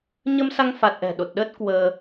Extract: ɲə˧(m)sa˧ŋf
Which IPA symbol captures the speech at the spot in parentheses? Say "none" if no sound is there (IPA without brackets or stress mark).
m